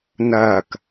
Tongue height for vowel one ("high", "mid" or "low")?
low